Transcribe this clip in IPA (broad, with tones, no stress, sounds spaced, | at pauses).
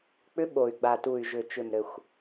k͡p ʏ˧˥ ɓ o˨˩ y̯ ɡ͡b a˨˩ t u˨˩ y̯ ʒ ʏ˨˩ t͡ʃ ʏ˨˩ m ɾ ɘ˨˩ xʷ